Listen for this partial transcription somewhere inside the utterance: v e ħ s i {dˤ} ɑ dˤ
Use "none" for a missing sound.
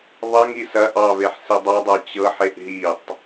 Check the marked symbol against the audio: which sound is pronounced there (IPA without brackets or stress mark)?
dˤ